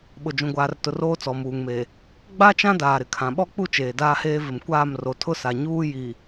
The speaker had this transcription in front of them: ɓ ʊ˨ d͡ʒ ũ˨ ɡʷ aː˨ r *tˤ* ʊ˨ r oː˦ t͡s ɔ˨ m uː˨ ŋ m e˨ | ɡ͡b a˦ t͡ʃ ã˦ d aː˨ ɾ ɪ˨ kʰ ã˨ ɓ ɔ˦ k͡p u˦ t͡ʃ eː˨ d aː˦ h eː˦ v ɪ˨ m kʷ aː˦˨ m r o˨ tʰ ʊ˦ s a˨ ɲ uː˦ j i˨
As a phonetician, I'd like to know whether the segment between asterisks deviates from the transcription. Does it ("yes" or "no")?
yes